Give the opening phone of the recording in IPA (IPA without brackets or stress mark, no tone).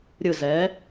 ɾʲ